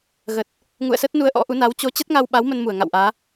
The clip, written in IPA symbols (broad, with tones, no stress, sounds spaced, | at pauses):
ɣ ə˨˩ t̚ | ŋ ṵ˧˨ ə̯ s ə˦˥ t̚ n u˧ ə̯ ʔ ɔ̰˧˥ ʔ u˨˦ n a˨˦ w t͡ɕ o˨˦ t͡ɕ ə˦˥ t̚ ŋ a˧ w ɓ a˨˦ w m ə˧ n m u˧˩ ə̯ ŋ a̰˧˨ w ʔ aː˨˦